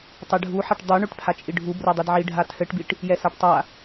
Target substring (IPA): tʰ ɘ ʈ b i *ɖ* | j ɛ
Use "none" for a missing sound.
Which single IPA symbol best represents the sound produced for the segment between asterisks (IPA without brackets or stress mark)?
ʈ